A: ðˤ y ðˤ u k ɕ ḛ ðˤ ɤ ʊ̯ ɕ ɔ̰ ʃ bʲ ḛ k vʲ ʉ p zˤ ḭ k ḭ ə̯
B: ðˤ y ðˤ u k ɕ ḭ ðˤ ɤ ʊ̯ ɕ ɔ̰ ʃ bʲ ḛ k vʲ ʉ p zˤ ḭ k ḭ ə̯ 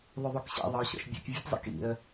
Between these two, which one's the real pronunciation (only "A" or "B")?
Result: A